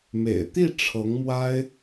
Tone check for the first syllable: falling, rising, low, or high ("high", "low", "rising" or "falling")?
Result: low